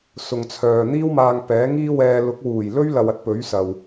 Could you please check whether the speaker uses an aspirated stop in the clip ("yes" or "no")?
yes